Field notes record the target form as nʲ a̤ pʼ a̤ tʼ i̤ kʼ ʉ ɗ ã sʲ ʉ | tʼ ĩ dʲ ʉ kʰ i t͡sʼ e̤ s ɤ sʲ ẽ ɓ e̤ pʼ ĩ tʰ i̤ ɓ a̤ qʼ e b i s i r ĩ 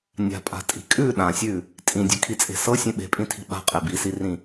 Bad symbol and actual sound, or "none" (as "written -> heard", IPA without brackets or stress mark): none